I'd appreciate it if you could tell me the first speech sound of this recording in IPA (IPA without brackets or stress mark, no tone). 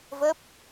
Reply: v